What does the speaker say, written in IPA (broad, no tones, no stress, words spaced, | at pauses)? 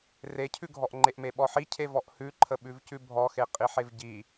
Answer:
recʰʉɡʱɔʔ ŋ͡ǃeʔmeɓɔħi cʰevɔʔhʉǃʰə ɓʉvcʉbʱɔxe qʼiħevɟi